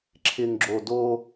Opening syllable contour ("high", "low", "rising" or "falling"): low